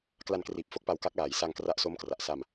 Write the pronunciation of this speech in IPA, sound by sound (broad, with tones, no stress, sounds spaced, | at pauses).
k l a˧ n k r iː˨˩ p̚ f o˦˥ k̚ p a˧ w k a˦˥ k̚ l aː˨˩ j s a˧ ŋ k r a˦˥ ʔ s o˦˥ m k r a˨˩ ʔ s a˧ m